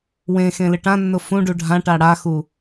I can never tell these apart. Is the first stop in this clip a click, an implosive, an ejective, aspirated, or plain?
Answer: plain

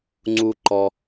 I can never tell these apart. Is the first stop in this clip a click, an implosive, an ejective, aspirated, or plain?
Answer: click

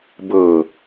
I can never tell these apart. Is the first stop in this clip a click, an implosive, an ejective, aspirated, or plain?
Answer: plain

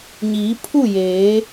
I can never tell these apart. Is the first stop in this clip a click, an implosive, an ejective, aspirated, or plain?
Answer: aspirated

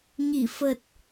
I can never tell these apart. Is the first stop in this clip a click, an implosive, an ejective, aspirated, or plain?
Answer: plain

